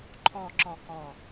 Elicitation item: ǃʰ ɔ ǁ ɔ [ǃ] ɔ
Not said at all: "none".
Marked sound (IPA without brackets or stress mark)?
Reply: k